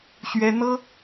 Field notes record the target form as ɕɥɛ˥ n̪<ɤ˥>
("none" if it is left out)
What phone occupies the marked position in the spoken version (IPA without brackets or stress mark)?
ɤ˥